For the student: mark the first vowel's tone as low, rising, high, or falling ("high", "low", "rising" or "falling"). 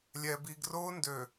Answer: low